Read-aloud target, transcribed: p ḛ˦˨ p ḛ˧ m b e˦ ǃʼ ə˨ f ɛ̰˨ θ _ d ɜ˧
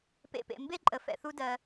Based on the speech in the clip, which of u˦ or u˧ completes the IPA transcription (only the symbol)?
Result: u˦